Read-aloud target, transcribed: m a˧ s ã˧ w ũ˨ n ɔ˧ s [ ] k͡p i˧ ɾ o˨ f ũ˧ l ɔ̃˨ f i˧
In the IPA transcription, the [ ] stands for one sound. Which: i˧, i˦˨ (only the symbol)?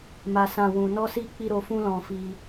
i˧